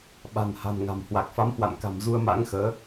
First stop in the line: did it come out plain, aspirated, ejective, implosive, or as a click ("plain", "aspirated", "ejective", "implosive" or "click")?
implosive